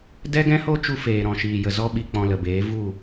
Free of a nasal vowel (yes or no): no